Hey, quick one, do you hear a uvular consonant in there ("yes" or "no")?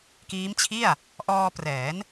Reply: no